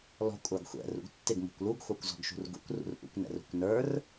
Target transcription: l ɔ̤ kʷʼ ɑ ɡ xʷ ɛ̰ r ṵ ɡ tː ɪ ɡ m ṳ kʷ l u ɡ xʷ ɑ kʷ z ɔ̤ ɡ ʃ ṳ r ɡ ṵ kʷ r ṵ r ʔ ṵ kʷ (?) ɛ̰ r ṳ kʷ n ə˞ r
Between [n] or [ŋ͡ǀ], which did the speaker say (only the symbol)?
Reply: n